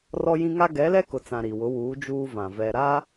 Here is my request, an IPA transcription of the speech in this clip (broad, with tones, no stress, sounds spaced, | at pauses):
r ɔ˦ j ĩ˦ ŋ a˦ ɡ ɛ˨˦ l ɛ˦ k ʊ˨ t͡s ã˨ ɾ i˨ w ʊ˨˦ w uː˨˦ d͡ʒ uː˦ v ã˨ v ɛ˨ ɾ a˦